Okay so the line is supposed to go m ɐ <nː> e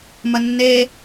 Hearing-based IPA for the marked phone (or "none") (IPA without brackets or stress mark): nː